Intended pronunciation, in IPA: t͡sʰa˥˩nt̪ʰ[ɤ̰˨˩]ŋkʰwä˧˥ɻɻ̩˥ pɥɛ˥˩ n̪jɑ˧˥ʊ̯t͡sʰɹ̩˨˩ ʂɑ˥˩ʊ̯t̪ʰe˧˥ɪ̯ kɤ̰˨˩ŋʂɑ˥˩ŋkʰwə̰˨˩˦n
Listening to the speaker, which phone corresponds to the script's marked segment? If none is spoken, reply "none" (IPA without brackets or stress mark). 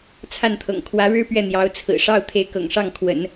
ɤ̰˨˩